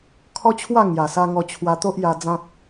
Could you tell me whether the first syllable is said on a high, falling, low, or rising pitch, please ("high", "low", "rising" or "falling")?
high